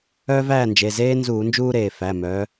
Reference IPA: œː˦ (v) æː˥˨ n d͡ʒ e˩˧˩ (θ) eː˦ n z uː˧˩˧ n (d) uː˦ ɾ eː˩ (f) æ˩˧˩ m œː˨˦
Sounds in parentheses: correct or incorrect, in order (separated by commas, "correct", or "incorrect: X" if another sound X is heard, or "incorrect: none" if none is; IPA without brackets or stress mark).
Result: correct, incorrect: z, incorrect: d͡ʒ, correct